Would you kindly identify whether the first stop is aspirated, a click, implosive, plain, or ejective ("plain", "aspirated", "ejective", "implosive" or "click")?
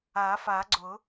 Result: click